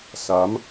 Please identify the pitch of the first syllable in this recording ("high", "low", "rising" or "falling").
rising